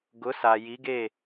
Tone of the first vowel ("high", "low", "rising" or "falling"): rising